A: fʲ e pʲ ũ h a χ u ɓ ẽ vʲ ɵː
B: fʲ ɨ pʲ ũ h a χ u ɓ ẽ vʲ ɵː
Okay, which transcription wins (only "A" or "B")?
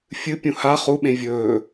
B